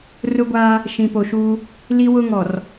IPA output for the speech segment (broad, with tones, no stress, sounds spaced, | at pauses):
r ʊ˦ ɡʷ aː˦ | ʃ ĩ˨ p o˨ ʃ uː˦ | l i˦ w ʊ˦ ŋ ɔ˨ r